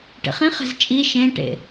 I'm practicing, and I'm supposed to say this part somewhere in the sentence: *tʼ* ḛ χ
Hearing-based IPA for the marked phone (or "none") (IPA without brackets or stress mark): ʈ